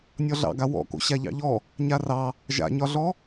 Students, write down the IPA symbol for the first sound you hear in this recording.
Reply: nʲ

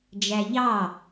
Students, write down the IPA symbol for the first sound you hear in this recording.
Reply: d͡ʒ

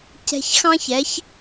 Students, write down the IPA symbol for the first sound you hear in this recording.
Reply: c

